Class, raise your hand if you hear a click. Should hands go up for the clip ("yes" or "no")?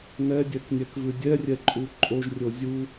yes